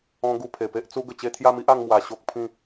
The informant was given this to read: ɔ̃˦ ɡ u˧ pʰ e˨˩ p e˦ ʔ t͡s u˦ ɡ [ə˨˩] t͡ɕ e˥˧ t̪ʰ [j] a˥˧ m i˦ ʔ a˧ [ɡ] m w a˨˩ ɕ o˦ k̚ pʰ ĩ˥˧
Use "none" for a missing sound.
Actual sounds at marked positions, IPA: ə˨˩, j, ŋ

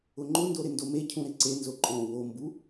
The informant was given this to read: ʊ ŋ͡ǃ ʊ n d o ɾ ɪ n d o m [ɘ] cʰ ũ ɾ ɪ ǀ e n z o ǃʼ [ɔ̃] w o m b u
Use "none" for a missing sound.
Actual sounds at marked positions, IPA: e, ɔ̃

